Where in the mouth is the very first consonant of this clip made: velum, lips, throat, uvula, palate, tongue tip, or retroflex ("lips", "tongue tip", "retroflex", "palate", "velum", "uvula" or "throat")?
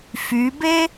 lips